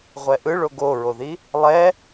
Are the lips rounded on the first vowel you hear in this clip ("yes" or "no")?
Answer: no